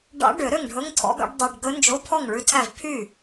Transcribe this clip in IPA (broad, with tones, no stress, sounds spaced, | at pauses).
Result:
ɖ ɑ̰˧˥ ɖ ø˨˩˦ ɾ ø˥˩ ŋ ɖʱ ɵ˧˥˧ ŋ tʰ ɔ̰˧˥ ɡ ɑ̰˧˥ ɖ dˤ ɛ˧˥˧ ɖ ɡ ɵ˧˥ n d͡ʒ o˧˥˧ pʰ ɔ˥˩ ŋ ɭ ʉ˧˥ tʰ æ˥˩ v pʰ y˥˩